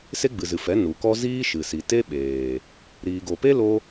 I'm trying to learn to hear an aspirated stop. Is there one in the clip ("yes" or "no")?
no